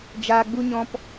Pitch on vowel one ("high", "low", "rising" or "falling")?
high